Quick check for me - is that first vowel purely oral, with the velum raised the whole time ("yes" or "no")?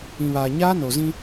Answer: no